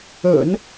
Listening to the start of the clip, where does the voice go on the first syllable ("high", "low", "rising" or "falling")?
low